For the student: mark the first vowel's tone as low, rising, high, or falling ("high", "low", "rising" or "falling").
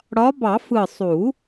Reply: rising